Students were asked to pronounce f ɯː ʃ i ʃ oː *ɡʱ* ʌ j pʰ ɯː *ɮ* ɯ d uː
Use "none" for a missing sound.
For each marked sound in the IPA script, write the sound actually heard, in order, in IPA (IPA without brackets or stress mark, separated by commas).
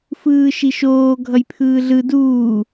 ɡʱ, ɮ